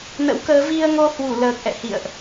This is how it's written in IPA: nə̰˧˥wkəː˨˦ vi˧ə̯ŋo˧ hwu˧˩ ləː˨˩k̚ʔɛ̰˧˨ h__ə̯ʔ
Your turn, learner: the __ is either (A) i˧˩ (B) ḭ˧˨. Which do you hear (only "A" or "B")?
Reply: B